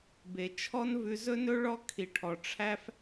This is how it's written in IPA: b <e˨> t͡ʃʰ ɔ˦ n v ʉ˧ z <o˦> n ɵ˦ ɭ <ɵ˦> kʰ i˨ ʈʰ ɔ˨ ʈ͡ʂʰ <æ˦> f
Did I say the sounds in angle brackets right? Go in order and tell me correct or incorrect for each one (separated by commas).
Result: correct, incorrect, incorrect, correct